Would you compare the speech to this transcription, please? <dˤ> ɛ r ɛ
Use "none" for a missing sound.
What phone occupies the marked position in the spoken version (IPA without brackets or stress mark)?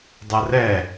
dˤ